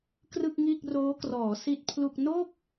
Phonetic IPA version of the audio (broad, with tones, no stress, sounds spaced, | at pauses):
k r ɯ˥˩ k̚ ŋ iː˥˩ k̚ r oː˦˥ k r ɔː˩˦ s i˥˩ t̚ pʰ l u˥˩ k̚ n o˥˩ k̚